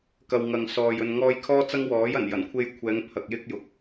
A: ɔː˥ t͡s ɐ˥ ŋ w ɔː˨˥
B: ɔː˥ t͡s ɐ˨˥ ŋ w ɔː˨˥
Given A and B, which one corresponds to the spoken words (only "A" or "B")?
A